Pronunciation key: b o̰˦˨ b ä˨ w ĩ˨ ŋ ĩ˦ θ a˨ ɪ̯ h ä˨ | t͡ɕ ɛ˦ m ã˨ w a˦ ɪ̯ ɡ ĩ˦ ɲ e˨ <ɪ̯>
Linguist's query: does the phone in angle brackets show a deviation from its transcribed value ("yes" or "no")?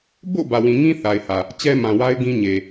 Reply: yes